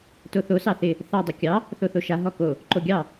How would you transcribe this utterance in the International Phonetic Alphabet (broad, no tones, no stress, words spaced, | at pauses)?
toθo sɑθɪ | θɑ dˤɘkʲɑ | θoθoʃa ɦɔko | ǃoɡʲɑ